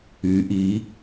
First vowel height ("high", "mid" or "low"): high